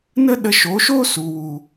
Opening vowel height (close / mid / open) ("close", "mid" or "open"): mid